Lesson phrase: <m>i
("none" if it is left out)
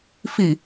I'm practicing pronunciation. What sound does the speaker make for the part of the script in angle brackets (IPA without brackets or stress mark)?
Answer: f